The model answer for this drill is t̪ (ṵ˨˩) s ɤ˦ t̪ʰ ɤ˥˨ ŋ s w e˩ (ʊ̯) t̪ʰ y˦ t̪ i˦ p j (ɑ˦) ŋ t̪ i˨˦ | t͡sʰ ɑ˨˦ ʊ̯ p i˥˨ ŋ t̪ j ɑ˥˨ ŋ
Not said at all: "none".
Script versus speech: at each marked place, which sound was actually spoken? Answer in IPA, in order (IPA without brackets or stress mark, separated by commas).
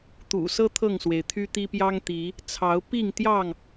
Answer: ṵ˨˩, ɪ̯, ɑ˦